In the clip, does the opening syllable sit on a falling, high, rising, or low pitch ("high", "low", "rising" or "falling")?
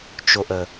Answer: low